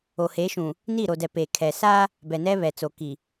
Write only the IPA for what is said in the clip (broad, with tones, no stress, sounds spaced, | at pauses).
o˨ h e˨˦ ʃ ũ˨ | n i˦˨ ɾ o˨ d ɛ˨ p e˨ kʰ ɛ˨ s a˦ | b ɛ˨ n ɛ˦ β ɛ˨ t͡s o˨ k i˨